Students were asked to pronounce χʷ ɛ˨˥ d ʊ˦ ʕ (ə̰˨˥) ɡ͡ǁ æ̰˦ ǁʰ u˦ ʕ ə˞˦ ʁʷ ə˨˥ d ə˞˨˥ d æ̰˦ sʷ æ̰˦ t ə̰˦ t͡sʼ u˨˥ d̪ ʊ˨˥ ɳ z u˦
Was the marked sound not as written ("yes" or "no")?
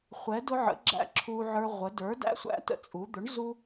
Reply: no